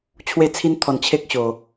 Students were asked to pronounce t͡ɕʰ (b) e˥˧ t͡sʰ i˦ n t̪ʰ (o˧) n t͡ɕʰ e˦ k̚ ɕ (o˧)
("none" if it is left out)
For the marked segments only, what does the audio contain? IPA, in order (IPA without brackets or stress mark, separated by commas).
w, ɔ˧, o˧